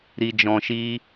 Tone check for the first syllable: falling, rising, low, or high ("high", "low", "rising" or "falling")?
low